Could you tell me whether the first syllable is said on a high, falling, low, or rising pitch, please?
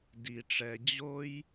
low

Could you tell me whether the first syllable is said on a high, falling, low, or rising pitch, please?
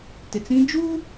low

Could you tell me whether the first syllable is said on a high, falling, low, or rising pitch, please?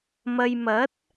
low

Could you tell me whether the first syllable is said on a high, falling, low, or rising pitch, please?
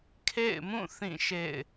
falling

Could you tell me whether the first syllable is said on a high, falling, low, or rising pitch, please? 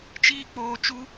high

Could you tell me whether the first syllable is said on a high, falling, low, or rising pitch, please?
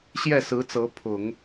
falling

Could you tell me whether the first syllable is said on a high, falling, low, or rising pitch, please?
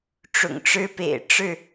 low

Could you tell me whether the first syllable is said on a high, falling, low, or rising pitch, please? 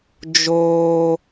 high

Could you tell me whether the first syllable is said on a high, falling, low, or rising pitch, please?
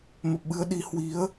low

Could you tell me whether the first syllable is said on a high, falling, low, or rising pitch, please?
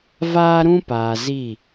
high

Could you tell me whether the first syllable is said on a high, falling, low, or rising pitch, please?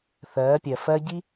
rising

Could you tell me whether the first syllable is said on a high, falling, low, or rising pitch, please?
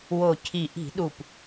low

